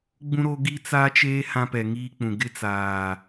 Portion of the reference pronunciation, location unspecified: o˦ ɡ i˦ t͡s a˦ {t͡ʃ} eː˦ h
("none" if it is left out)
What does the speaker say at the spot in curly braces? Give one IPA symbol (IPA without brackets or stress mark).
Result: t͡ʃ